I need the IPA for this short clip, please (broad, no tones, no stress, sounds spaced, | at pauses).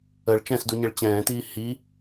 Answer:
ə ɭ t͡ʃ ɛ̃ s d u ɲ e ɭ t͡ɕ ɛ̃ː t iː h i